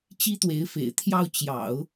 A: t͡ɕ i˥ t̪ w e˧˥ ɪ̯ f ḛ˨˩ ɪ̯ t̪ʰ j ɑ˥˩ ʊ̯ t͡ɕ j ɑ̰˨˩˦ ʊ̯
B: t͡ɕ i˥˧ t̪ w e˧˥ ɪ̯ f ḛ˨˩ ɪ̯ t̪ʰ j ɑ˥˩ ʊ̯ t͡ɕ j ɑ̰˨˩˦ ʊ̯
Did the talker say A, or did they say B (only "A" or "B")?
A